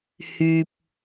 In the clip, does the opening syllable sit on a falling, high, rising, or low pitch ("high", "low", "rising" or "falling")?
low